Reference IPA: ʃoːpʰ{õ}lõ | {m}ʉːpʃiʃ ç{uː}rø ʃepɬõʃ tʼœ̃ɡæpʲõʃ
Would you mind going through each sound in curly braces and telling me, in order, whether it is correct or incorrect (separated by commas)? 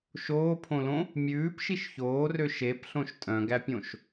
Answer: correct, incorrect, incorrect